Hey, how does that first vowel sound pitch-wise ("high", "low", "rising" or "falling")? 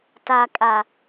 low